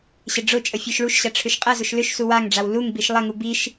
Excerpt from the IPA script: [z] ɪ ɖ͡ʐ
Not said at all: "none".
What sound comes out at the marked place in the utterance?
ɕ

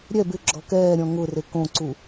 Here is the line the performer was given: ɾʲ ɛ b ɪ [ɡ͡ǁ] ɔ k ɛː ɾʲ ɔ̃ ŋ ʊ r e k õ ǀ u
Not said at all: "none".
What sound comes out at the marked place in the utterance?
ɡ͡ǁ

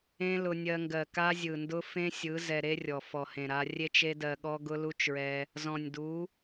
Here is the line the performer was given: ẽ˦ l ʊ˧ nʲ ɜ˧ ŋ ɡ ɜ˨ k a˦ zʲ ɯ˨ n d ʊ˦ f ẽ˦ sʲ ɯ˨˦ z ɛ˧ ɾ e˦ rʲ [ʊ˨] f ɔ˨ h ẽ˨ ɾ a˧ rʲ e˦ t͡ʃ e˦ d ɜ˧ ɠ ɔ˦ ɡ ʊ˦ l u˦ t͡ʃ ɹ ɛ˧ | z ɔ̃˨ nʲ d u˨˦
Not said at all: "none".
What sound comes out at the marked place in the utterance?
ɔ˨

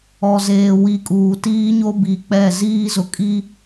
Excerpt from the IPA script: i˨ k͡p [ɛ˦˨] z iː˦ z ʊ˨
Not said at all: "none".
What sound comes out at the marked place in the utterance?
ɛ˦˨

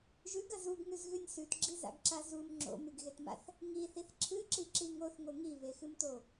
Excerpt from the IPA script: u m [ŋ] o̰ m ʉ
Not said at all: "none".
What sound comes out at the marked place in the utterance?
ŋ͡ǁ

